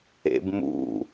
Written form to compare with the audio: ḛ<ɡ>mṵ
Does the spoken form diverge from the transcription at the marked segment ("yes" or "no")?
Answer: yes